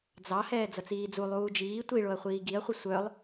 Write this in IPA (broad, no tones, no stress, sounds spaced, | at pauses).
d͡z ɑ h ɛː d͡z ʌ t͡s iː d͡z u lˠ uː d͡ʒ iː tʷ i ɭ o ɐ̯ χʷ iː ɡ i ɐ̯ χʷ ʌ sʷ œ lˠ